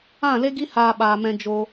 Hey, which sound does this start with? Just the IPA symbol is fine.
ã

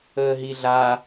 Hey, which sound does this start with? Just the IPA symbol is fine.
əː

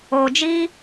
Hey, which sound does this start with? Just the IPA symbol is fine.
oː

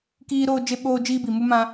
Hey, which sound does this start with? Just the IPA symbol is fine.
k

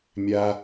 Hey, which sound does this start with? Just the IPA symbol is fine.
mʲ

